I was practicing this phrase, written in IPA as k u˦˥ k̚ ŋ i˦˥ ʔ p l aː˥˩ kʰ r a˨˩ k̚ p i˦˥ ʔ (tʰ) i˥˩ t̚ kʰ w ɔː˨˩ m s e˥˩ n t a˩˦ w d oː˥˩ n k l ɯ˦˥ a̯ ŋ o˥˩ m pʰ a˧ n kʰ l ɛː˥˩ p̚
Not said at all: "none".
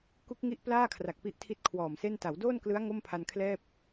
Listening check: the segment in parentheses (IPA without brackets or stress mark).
tʰ